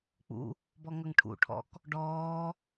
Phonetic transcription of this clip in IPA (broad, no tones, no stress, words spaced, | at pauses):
k͡pṵ | bɔŋʌŋʈʰṵʈʰɔ̰k | ɖɔː